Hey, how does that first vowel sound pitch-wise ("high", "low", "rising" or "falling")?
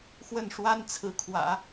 falling